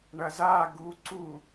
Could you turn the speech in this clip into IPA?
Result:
ɳ ɐ z a ɡ u ǀ u

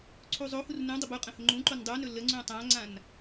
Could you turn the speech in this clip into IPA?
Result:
ǀʰ u zˤ o h u r n ũ dˤ ə b u qʼ ə̃ h ɵ ŋ͡ǃ ũ ǃ o n dˤ u n ɵ l ə ŋ͡ǀ ũ tˤ ã ŋ͡ǀ ã n

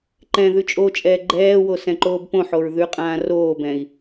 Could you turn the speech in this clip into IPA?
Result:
ǃ ɛ̃ ð ʉ t͡ʃʼ o t͡ʃʼ ɛː ɡ͡ǃ ɛː w o s ɛ̃ ǃ oː b p õ ħ o ɹ ð ʉ qʼ ãː r oː b ɛ̃ i̯

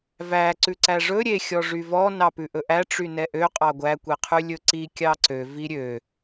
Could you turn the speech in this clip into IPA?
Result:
v æ ǀ ʉ ǀ æ ʐ ɵ ɾʲ e xʲ ɔ ʐ y v ɔ n ɑ p ʉ ʔ ɵ ʔ æ ʈ͡ʂ y n ɛ ʔ ø qʼ ɑ ɡʷ æ kʷ e qʰ ʉ lʲ ɵ ǀ i kʲ ɑ ǀ ø v i ɾʲ ø

